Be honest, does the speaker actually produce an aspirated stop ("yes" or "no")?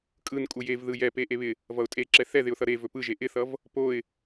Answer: no